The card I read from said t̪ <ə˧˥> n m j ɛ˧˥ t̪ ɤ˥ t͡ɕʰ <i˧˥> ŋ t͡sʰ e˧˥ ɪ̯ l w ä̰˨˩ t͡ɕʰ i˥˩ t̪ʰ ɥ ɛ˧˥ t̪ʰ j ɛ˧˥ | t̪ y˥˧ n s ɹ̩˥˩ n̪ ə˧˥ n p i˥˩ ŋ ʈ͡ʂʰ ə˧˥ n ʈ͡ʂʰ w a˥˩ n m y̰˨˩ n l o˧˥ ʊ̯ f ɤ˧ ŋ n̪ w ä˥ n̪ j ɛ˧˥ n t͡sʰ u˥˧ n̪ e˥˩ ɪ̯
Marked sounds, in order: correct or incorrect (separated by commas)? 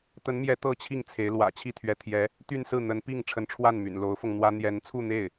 correct, incorrect